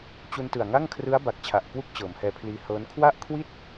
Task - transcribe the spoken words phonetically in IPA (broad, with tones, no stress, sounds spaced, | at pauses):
t͡ɕ u˧ n t ɯ˨˩ a̯ ŋ a˥˩ ŋ kʰ r ɯ˦˥ a̯ b a˨˩ k̚ t͡ɕʰ a˨˩ ʔ k w u˥˩ k̚ t͡ɕ ɤː˩˦ m h ɛː˧ pʰ l iː˧ h ɤː˦˥ n kʰ w a˥˩ ʔ kʰ w i˥˩ t̚